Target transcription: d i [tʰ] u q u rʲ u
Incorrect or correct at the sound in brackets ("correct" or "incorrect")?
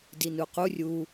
incorrect